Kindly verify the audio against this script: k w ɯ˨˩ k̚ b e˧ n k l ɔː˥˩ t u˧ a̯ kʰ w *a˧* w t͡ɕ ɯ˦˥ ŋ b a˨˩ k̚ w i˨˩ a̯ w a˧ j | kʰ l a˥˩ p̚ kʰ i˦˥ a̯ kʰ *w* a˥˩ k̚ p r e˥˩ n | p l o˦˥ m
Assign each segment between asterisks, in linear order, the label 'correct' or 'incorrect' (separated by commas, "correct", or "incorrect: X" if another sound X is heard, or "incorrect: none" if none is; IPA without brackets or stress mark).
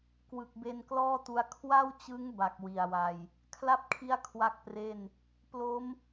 incorrect: a˥˩, correct